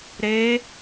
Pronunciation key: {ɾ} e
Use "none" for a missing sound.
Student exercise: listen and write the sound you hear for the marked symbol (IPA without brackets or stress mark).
ɾ